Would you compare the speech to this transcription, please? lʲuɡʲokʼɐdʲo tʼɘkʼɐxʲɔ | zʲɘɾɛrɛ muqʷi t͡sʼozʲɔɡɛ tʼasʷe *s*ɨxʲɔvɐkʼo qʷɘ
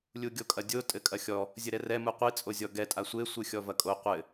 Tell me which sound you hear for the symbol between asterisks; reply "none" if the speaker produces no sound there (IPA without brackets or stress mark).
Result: sʷ